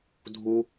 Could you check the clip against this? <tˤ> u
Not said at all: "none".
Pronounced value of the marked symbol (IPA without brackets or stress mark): dʱ